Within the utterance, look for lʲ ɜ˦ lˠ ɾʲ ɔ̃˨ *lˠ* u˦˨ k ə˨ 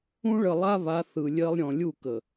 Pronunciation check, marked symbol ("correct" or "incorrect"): incorrect